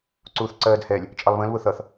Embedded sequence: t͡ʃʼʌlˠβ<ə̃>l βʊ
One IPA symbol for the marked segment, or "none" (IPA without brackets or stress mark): ə̃